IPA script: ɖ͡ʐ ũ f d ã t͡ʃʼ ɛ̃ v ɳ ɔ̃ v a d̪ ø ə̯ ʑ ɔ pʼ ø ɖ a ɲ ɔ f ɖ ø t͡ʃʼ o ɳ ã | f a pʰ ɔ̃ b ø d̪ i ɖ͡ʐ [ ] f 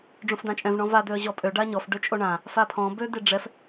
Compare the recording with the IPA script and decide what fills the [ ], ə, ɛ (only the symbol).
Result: ɛ